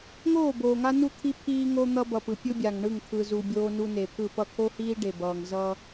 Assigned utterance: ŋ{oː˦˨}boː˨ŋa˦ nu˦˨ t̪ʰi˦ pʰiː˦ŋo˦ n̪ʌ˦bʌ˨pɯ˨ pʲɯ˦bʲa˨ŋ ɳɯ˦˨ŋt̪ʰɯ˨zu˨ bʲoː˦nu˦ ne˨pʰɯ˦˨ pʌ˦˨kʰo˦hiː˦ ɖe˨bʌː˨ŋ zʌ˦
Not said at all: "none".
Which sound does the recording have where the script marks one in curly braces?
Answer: oː˦˨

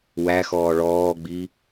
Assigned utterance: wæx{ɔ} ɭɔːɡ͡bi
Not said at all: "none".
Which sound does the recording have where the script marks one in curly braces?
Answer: ɔː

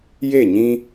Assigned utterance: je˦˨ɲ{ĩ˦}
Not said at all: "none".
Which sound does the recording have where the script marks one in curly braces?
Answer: ĩ˦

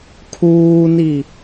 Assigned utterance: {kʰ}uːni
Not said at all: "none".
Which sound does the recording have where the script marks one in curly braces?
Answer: kʰ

